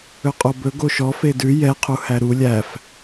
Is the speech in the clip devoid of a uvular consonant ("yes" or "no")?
no